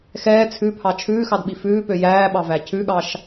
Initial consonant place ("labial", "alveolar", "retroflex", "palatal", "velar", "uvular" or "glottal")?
velar